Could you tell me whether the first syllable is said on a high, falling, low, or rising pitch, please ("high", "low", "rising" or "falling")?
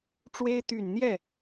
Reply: high